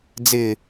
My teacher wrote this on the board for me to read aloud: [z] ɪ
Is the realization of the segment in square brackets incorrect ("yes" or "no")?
yes